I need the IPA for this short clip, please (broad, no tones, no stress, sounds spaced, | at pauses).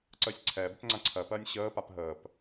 ǀ əː sʲ ǀʰ ɛː b ə p ŋ͡ǀ ã ǀʰ ɜ p ɜː nʲ ɕ əː p a p ɦ əː p